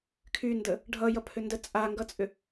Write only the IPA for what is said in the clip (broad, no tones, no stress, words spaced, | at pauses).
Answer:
kʰyndə | ɖʱʌjʌpʰʏndə t͡sʼaŋɡʌt͡sʼʏ